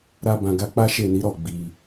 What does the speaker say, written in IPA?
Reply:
ɾ a˧ b ã˨ ɡ a˧ k͡p a˦ ʃ e˦˨ n i˨˦ ɾ ɔ˦˨ ɡ͡b i˧

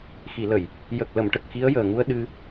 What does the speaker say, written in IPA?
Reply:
x i˨˩˨ l ə˨˩˨ j | j ə˨˩ k̚ l ə˨˩˨ m ʈ ə˨˩ k̚ x i˧˥ ə̯ j əː˨˩ ŋ u˧ ə̯ ɗ ɨ˧

